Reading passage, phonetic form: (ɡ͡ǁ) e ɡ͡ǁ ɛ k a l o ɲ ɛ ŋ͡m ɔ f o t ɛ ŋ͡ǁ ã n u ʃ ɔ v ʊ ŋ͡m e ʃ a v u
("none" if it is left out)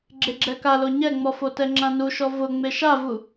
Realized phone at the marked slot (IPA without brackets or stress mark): ɡ͡ǁ